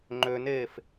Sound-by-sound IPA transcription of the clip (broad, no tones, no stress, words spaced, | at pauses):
ŋ͡ǃøneːf